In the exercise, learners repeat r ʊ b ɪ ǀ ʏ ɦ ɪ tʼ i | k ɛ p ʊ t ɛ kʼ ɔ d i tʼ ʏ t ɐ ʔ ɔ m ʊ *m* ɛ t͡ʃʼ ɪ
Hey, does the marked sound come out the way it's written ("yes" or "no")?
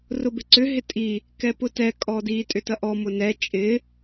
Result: no